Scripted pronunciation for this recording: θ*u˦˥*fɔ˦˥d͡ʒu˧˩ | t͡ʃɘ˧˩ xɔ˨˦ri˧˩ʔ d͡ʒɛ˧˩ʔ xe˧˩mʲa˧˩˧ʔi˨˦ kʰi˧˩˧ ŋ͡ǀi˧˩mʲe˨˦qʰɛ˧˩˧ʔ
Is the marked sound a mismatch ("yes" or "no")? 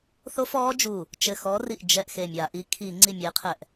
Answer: yes